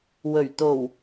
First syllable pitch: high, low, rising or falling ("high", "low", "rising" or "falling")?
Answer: low